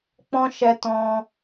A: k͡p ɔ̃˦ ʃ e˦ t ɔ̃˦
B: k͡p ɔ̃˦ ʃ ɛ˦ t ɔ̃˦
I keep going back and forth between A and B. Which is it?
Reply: B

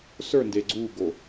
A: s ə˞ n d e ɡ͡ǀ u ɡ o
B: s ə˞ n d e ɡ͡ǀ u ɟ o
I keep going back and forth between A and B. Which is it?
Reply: A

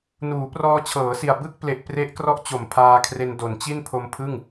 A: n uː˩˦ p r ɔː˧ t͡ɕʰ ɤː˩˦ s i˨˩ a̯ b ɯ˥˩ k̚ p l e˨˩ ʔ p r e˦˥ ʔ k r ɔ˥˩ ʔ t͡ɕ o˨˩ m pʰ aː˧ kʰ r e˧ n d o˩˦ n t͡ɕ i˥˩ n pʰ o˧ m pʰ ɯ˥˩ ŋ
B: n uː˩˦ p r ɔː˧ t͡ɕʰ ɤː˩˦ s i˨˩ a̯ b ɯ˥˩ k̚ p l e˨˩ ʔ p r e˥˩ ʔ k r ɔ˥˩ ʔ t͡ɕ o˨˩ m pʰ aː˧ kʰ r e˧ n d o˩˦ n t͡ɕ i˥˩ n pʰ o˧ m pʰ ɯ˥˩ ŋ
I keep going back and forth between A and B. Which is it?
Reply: A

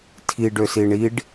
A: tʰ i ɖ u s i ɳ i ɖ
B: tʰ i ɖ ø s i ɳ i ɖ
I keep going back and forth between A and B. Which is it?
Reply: B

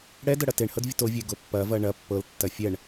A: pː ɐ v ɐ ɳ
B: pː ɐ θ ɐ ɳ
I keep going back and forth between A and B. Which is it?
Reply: A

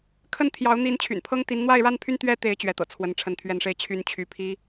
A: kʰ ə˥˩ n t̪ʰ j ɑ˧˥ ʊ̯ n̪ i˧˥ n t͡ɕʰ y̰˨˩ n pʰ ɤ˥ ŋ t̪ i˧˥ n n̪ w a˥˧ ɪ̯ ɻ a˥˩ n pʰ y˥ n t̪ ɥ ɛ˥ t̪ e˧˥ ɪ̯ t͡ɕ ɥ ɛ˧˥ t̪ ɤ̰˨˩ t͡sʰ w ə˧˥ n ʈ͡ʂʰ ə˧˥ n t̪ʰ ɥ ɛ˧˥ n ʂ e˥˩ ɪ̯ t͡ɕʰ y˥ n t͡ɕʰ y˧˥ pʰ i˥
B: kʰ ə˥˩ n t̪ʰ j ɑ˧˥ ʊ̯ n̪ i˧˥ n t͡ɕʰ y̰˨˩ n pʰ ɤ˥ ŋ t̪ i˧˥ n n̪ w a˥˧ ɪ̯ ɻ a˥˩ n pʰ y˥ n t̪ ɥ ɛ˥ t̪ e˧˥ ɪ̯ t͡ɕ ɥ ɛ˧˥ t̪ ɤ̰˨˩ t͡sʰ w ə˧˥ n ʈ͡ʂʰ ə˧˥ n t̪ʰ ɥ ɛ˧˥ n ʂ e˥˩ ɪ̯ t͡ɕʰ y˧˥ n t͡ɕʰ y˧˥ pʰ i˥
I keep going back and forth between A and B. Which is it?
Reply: B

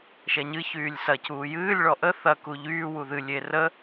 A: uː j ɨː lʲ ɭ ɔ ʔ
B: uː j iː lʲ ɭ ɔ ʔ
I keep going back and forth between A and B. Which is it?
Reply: A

